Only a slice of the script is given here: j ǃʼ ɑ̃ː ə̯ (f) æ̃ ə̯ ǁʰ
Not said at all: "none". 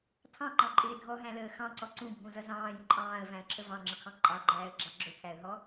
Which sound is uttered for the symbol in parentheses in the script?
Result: v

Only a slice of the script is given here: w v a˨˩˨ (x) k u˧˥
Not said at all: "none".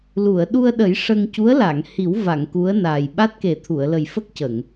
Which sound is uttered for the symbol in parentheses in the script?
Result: ŋ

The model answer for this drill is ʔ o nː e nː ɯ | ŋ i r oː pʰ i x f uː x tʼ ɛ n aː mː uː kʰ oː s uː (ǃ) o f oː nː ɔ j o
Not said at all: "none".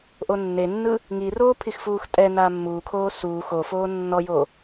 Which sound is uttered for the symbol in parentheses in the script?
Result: x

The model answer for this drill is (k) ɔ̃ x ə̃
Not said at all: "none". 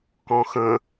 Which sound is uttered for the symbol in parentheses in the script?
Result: k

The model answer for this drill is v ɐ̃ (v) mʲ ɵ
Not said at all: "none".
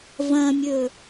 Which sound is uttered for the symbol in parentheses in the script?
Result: none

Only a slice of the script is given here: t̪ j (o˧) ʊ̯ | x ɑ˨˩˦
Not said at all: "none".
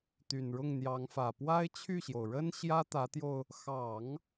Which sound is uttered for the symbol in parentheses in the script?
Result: o˧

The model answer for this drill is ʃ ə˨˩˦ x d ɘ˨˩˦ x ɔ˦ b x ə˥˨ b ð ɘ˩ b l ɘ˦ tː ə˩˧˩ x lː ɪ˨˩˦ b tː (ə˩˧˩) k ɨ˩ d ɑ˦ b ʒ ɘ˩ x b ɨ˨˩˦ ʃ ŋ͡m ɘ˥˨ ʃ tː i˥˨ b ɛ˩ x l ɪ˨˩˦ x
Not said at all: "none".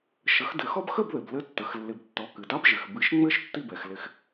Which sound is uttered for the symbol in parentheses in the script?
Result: ɔ˩˧˩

